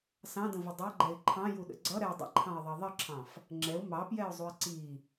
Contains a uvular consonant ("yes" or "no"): no